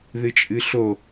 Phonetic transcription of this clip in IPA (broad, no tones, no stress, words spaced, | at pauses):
ðɨt͡ʃʼɨɬo